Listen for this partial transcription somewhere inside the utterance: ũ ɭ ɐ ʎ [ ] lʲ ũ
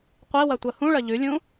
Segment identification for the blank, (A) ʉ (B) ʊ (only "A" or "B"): A